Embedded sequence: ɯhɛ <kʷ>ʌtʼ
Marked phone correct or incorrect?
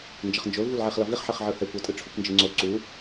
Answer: correct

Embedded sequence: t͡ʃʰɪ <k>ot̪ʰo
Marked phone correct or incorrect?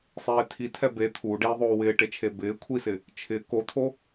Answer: correct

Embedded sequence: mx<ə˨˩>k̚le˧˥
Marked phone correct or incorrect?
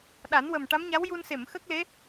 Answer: incorrect: ə˦˥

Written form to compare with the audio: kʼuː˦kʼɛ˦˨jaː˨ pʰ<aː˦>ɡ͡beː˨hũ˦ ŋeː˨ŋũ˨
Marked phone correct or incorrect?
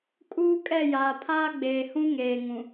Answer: correct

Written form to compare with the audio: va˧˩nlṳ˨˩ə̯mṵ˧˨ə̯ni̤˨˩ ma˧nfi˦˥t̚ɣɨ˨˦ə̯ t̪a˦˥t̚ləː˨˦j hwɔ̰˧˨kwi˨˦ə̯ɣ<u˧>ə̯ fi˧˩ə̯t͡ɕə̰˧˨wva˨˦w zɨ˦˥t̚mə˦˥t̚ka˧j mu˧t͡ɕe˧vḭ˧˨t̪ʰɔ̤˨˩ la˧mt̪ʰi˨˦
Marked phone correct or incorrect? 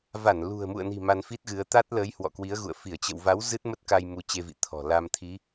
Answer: incorrect: ṵ˧˨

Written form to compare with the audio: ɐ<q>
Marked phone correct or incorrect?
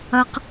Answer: correct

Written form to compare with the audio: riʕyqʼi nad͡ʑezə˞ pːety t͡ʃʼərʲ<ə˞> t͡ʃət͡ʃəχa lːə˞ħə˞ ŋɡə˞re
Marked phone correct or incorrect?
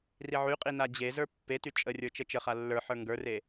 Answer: correct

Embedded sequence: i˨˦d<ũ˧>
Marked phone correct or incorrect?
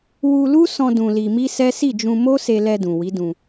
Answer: correct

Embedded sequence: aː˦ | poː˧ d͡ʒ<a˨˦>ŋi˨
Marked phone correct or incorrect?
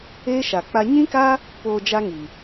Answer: incorrect: a˦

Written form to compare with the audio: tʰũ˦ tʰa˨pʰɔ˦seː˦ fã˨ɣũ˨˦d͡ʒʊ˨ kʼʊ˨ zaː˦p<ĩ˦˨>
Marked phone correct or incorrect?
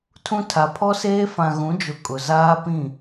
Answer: correct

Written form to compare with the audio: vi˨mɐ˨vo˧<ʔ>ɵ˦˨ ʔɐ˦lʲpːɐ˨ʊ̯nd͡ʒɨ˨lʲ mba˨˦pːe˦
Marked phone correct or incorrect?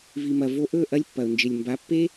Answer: correct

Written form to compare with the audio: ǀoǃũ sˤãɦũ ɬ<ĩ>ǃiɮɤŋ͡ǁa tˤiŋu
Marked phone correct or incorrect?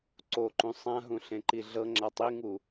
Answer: incorrect: ẽ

